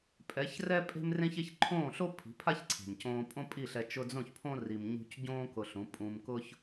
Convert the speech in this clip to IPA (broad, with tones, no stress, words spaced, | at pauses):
pʼɛ˨˦çrɛ˦ pʼe̤˦mrẽ˦çe˦ç ǃʰõː˦˨ɬo˦ pʰi̤˨˦pʰa˦çǀʰe̤˨mcõː˧ pʼõ˦pʼi˦˨ɬɛ˧ t͡ʃʊ˧d͡zõ˦˨çpʰõ˦ ri˧mɲṳ˦c ɟõː˦ kʊ˧ɬũ˨˦ pʼũ˧mkʊ˦ç